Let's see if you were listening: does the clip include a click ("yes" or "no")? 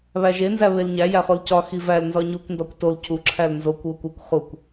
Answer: yes